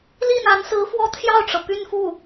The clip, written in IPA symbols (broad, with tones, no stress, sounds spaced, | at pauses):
l i˥˩ n a˧˥ n s ɹ̩˧˥ f w ɔ˥ t̪ʰ j ɑ˥˩ ʊ̯ ʈ͡ʂ ɤ˩ p y˥˧ n f u˥˩